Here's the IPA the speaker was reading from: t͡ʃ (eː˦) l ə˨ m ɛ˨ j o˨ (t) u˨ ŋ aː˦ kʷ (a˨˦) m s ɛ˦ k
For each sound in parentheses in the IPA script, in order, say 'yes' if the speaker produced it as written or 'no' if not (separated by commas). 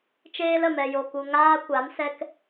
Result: yes, no, yes